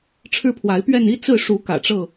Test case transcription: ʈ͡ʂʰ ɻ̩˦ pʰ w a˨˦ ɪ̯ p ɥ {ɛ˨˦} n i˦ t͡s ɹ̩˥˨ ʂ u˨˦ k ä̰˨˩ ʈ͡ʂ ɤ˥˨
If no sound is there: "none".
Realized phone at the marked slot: ɛ˥˨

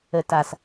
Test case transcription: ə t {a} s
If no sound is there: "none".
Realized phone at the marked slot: a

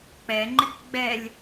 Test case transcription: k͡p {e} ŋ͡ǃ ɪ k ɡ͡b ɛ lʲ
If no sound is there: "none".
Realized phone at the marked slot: ɛ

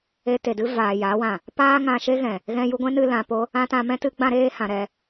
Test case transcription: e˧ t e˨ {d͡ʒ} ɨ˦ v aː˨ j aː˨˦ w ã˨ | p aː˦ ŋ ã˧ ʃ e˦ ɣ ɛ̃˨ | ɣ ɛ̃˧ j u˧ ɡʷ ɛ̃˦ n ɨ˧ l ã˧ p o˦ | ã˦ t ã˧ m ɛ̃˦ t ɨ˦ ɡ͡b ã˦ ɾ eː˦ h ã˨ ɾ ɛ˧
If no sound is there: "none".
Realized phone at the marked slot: d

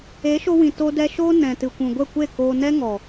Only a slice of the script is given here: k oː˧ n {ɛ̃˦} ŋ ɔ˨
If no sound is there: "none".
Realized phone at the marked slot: ɛ˦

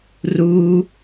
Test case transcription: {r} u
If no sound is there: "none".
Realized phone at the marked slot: r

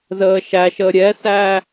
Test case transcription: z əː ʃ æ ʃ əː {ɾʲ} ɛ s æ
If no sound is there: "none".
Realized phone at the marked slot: ɾʲ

